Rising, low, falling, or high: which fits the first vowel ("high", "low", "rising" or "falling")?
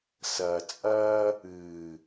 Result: low